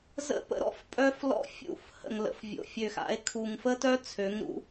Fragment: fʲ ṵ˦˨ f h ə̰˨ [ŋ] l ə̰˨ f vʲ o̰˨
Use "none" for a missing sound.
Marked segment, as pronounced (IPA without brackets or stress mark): ŋ